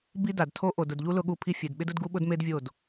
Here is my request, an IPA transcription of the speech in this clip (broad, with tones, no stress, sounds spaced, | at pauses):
b i˦ d a˨ d tʰ o˦ ʔ o˨ d ʊ˨ d ʎ u˦ l ʊ˦ ɠ u˦˨ pʰ i˦ fʲ e˨ d ɓ ɪ˦ d ʊ˦ d ɡ u˦ ɓ ʊ˦ d m e˦ d vʲ o˦˨ d